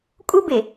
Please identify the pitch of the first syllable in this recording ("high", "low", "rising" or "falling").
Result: high